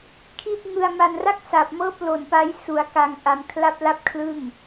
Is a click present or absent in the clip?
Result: absent